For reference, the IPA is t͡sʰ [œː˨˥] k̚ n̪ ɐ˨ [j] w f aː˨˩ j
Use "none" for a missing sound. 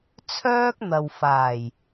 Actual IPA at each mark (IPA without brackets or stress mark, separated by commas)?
œː˥, none